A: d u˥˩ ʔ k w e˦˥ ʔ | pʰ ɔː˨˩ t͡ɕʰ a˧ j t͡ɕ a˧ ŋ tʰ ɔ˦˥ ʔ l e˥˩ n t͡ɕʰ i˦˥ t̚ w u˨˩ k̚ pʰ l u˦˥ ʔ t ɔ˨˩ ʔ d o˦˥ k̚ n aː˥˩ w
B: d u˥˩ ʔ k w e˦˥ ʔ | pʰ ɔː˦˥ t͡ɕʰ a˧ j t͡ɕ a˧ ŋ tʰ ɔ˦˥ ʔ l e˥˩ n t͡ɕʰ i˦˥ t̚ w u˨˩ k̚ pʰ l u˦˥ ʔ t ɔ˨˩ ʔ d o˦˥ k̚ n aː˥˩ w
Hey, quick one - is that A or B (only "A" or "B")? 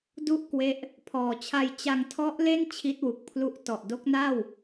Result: A